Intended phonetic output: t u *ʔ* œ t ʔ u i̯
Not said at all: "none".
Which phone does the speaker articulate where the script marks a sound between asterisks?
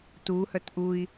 h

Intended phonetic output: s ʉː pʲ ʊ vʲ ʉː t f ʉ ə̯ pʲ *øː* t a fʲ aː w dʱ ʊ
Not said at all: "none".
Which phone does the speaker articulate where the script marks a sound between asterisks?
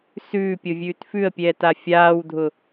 ɛː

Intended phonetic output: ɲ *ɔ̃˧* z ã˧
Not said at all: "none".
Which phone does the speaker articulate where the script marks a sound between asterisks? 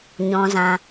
ɔ̃˧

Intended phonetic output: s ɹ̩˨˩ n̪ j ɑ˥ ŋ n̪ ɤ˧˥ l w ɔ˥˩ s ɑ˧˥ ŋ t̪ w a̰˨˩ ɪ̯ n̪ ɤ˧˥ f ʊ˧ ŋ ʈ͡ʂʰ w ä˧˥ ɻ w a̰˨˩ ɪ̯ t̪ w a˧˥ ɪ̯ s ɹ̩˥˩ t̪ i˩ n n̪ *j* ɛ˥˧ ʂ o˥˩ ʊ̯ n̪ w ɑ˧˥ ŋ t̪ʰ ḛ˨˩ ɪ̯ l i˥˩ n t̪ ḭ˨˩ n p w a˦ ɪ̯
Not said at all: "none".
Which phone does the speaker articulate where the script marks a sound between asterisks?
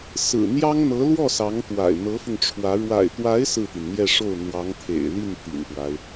j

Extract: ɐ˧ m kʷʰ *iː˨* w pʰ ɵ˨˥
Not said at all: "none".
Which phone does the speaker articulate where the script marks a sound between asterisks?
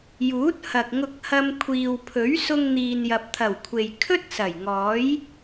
iː˨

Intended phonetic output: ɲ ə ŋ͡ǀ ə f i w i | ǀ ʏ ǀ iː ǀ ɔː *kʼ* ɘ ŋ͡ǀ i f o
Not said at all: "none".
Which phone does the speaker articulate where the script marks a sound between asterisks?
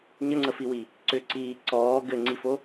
ɡ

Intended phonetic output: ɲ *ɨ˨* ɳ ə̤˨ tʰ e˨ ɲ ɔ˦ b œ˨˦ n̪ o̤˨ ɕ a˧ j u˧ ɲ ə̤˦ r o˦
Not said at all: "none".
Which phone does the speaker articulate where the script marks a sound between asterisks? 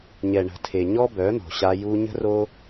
ɛ˨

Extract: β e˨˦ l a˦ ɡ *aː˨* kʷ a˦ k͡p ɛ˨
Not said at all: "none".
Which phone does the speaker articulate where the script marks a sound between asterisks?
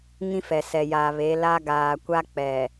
aː˨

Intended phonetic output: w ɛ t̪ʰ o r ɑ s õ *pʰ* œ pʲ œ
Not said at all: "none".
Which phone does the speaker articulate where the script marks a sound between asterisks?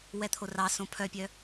pʰ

